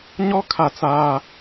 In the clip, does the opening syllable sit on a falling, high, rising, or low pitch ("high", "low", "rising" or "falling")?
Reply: high